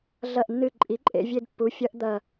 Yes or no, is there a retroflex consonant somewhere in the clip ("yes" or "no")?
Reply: no